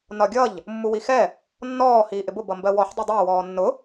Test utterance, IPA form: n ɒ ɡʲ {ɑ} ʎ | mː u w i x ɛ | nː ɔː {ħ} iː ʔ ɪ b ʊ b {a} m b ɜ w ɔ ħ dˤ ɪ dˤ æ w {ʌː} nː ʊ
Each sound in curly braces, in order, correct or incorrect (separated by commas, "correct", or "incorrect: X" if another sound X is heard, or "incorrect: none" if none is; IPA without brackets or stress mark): incorrect: ʌ, incorrect: h, incorrect: ʌ, incorrect: ɔː